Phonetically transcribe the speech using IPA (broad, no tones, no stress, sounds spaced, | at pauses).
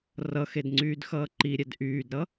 r ʌ x e d ŋ͡ǀ yː d x ʌː ǃ i ɾʲ ɛ d ʔ yː d ɾ ʌ